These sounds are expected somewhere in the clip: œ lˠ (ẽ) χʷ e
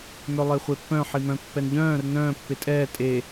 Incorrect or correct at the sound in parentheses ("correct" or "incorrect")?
incorrect